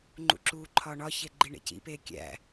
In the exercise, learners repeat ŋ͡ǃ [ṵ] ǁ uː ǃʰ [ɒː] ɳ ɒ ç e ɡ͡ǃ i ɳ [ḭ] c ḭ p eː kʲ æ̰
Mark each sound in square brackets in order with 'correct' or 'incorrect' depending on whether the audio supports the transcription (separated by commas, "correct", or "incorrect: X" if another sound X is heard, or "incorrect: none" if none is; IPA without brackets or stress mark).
correct, correct, incorrect: ḛ